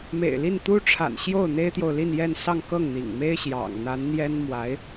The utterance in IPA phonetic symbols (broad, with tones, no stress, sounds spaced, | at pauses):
m ḛ˨˩ ɪ̯ l i˥˩ n t̪ u˥ ʈ͡ʂʰ a̰˨˩ n ɕ j o˥˩ ʊ̯ n̪ e˥ ɪ̯ t̪ j o˨ ʊ̯ l i˥˧ n j ɛ˥˧ n s ɑ˥˧ ŋ k ɤ˥˩ ŋ n̪ ḭ˨˩ ŋ m e˥ ɪ̯ ɕ j ɑ̰˨˩ ŋ n̪ a˧˥ n n̪ j ɛ˥ n m w a˧˥ ɪ̯